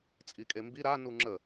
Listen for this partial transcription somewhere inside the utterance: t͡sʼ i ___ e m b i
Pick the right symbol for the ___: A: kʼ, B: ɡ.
A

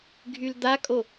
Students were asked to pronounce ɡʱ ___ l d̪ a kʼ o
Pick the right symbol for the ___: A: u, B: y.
B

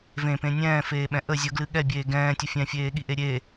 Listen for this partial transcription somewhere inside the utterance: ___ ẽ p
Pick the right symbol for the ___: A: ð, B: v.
B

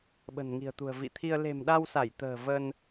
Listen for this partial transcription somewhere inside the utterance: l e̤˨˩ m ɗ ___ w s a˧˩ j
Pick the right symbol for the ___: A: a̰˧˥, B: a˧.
B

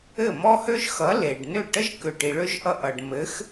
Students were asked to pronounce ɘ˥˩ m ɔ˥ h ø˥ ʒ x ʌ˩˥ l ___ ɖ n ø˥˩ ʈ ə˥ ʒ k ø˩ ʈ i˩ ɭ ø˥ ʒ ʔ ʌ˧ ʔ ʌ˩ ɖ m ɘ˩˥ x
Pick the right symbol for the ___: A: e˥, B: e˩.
B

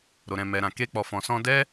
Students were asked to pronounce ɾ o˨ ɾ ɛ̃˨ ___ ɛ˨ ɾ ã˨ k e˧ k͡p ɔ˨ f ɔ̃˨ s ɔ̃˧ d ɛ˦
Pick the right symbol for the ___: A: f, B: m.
B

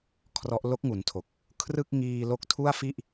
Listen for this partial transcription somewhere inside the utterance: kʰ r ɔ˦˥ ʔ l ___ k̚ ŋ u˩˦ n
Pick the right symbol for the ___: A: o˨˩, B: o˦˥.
B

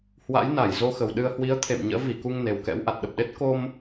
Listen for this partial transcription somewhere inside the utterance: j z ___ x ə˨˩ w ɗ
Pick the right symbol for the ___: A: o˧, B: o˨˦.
A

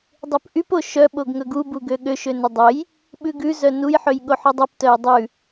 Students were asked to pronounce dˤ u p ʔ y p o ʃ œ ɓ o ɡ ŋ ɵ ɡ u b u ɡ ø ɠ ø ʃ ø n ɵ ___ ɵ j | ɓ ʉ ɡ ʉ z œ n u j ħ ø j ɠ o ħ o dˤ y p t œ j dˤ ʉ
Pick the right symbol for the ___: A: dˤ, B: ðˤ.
A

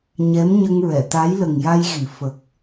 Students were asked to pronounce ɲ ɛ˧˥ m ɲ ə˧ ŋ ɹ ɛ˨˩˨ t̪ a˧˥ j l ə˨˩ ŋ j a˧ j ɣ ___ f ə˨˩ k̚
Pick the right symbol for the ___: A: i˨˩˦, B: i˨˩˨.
B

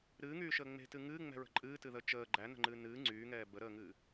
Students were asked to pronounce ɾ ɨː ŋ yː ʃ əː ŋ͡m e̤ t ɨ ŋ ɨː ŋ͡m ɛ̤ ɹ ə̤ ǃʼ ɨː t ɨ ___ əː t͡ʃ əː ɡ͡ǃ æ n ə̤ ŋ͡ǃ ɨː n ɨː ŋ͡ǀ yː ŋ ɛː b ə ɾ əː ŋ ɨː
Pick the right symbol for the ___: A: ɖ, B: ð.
B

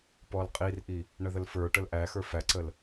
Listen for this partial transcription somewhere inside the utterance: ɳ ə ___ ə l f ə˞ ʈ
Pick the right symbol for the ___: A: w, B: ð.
B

